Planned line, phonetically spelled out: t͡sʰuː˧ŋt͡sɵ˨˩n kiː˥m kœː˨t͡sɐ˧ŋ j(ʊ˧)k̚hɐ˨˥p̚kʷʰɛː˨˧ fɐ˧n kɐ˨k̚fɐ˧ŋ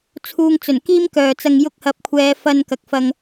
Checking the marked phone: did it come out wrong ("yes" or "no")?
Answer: no